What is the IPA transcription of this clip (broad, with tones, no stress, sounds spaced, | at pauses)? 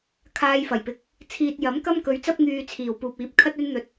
kʰ aː˧ j f ɐ˨˩ j p ɪ˨˥ k̚ | t͡sʰ iː˨ t̚ j ɐ˨˥ m k ɐ˥ m k ɵ˨˧ ɥ t͡s ɐ˥ p̚ ŋ yː˧ t͡sʰ iː˨˩ w p uː˨ p̚ iː˨˥ p̚ kʰ ɐ˥ t̚ ɵ˥ n n̪ ɵ˧ t̚